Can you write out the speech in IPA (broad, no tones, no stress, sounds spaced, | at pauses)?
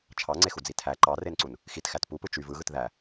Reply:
t͡ʃʰ ɑ ŋ͡ǀ e x u d͡z i tʰ æ ǃ ɑ r e n ǀ u n | x i t x æ t p u p ɯ t͡ʃ y v ɯ ɣ ɯ t ð æ